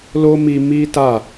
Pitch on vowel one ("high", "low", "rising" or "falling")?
high